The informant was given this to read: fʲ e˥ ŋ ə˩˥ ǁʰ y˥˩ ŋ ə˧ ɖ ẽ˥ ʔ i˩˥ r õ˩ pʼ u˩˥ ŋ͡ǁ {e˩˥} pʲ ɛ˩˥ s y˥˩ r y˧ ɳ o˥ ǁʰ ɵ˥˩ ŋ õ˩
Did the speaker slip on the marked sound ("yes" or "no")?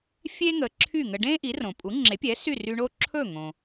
no